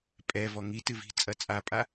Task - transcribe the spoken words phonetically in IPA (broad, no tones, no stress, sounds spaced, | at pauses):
pʼ ɛ v ɔ ŋ i t ɨ v i̤ t͡sʼ ɐ t͡sʼ a pʼ a